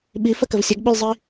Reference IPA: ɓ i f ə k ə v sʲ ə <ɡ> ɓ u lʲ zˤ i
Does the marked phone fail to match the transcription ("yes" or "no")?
no